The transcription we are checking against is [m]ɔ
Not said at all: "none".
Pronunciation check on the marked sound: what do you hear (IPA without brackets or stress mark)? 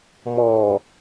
m